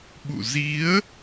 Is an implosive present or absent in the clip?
present